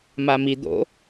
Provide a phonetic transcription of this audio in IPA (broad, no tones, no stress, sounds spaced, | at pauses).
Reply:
m a m i d̪ o̰